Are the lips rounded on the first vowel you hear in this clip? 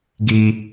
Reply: no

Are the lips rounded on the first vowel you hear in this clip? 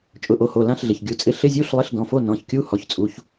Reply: yes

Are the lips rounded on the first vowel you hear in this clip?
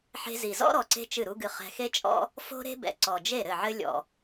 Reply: no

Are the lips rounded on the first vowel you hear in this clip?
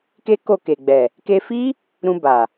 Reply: no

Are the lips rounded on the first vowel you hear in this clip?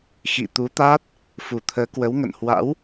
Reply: no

